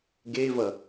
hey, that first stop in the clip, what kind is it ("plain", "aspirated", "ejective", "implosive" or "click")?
plain